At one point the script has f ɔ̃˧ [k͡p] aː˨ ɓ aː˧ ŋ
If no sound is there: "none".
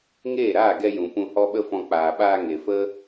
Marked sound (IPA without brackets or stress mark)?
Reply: k͡p